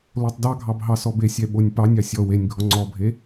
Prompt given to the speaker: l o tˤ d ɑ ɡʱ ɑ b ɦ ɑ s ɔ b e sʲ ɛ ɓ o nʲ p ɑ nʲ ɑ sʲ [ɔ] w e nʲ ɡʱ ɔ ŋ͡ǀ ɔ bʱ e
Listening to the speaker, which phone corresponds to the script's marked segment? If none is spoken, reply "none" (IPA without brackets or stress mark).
ɔ